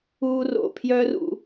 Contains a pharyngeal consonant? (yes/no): no